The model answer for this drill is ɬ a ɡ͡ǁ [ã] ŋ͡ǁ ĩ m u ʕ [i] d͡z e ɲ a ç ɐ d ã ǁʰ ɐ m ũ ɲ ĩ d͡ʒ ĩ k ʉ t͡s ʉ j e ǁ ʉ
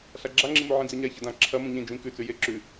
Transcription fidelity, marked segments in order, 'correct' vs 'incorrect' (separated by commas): incorrect, incorrect